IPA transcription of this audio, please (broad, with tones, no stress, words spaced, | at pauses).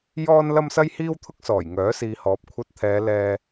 jɔː˥n lɐ˥msɐ˥jhiː˥wt̪ʰʊ˥k̚ sɔː˨˩jŋœː˨˥siː˨hɔː˨˥p̚ kʷʰɐ˧t̚t̪ʰɛː˨˧ lɛː˧